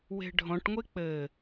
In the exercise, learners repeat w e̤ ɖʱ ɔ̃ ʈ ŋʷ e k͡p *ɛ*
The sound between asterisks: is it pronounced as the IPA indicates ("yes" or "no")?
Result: no